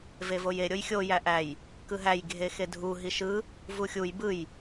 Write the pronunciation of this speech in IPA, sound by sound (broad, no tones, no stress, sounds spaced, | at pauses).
v e v o j e ɾʲ o j xʲ o j æ ʔ æ j | k ɯ ɦ æ j ɡʱ e x e dʱ u ɦ i ʃ ɯ | v u xʲ u j b ɯ j